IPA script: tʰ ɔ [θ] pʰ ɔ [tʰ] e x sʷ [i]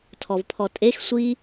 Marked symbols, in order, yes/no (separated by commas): no, no, yes